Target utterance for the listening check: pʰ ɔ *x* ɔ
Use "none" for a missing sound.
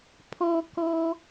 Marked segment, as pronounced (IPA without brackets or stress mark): k